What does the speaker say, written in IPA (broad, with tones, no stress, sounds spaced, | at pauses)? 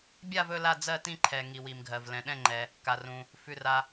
bʲ a˦˨ v ɵ˦˨ l a˦˨ d͡z ɜ˦˨ t ĩ˦˨ ǃʰ ɛ˩ ŋ i˩ w i˩ m ɡʱ ɜ˩ v l ɛ̃˩ ɗ ɛ̃˦˨ ŋ͡ǃ ɛ˩ | k a˩ r ũ˩ | f ʉ˩ r a˩